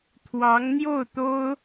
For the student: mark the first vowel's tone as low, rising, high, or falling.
rising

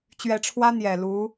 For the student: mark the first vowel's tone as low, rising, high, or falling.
rising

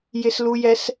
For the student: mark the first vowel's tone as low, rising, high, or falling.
high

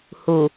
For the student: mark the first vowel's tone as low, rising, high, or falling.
low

